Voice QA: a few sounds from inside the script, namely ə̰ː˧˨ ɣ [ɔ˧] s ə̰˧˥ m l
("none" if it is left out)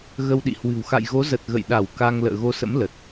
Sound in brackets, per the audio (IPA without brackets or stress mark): o˧